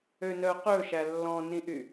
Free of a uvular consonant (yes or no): no